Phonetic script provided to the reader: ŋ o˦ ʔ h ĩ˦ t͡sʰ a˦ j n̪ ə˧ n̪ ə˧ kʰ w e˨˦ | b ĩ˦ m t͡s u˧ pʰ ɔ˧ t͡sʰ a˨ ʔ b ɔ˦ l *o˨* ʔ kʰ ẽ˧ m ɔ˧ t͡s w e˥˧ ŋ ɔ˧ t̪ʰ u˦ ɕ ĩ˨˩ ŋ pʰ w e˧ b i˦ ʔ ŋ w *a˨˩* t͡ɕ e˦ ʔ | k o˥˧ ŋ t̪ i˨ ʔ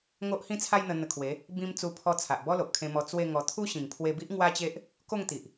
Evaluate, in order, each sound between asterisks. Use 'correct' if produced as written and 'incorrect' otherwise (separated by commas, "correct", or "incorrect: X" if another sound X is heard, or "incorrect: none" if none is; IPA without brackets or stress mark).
correct, incorrect: a˦